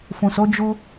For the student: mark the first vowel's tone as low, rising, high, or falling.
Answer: low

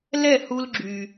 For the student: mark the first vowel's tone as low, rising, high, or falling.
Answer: falling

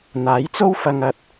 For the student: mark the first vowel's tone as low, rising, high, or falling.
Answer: rising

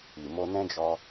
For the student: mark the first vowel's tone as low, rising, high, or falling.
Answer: low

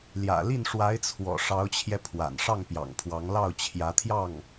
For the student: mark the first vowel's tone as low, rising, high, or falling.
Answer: low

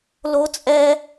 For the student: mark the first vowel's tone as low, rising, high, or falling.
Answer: high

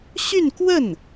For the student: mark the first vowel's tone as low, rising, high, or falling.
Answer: falling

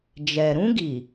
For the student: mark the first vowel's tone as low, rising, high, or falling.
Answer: low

